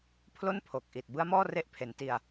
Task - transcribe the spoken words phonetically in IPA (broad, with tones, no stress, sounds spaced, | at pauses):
pʰ l o˥˩ n pʰ o˨˩ k̚ ʔ i˨˩ t̚ b ɯ˦˥ a̯ m ɔː˥˩ r e˦˥ ʔ pʰ e˩˦ n t i˧ a̯